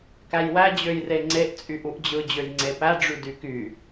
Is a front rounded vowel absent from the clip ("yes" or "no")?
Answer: no